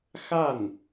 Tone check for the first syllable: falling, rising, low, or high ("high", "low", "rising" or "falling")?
falling